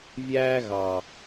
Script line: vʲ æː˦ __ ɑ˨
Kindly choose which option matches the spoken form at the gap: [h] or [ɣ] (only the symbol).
ɣ